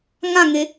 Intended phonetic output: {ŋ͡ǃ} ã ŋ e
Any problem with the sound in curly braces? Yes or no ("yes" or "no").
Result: yes